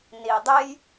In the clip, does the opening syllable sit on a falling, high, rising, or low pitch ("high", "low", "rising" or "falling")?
low